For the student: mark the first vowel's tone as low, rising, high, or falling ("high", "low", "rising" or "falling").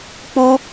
high